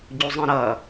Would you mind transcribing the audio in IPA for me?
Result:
ɟ u zˤ ɛ̃ ɾ ʌ

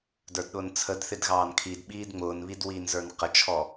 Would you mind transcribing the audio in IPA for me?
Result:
d ə˞ d ɗ ʊː n t͡sʰ ə d θ ɪ d ɣ ɑː n kʰ i d ɓ iː d ŋ͡m ʊː n β i d w iː n z ə˞ n q ə t͡ʃʰ ɔ

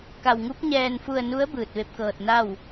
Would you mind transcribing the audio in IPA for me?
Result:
k a˧ w ŋ u˧˥ p̚ ɲ ɛː˧ n f u˧ ə̯ n u˧˥ ə̯ b ɯː˧ t̚ ʋ e˧˥ p̚ k ɤː˧ t̚ n a˥˨ w

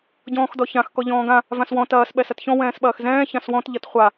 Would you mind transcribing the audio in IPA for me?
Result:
ɟ ɔ̃ː x d ɔ ç ã x k ɔ ʎ ɔ̃ː ɡ ã | v ã s w ɔ̃ t ɐː s ɓ ɛ s ɐ t ç ɔ̃ w ɛ̃ː s ɓ ɐː x z ɛ̃ː ç ã s w ɔ̃ t ʎ ɐ t χʷ a

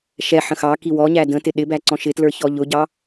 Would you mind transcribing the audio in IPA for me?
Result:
ʃ ɛ ħ ə̃ x ɑ k i w ɔ ɲ æ d ə̃ t ɪ ɗ ɪ b æ ǀ ɔ̃ ʃ ɪ t l ə˞ ç ɔ ʎ ʊ ɟ ɑ

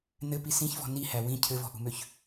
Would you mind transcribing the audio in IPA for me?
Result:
n ɘ p i s ĩ ç v ɔ̤ n i h æ w ĩ cʰ ɘ v ɔ̤ ʔ ṳ m ø ç

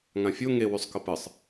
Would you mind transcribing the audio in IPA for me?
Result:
ŋ ã fʲ o ŋ e w y sˤ k ɤ p ɨ sˤ

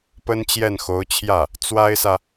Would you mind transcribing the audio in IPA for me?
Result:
p ə˥ n t͡ɕ j ɛ˥˩ n x o˧˥ ʊ̯ t͡ɕʰ j ä˥˩ | t͡s w a˥ ɪ̯ s ä˨

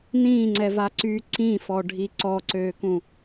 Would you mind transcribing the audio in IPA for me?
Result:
n ĩː ŋ͡ǀ ɛ v a ǀ yː ǀ ĩ f ɔ ɖʱ i ǀ ɔ ǀ øː k ũ

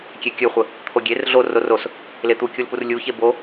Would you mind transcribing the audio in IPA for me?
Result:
kʲ e kʲ ɵ χʷ ə | t̪ʰ o ɡʲ e r ɮ o r o r o s | l e t̪ u kʲ u l p u r lʲ u ç e b o

